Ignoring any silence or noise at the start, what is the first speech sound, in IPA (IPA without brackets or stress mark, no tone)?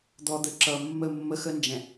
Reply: d̪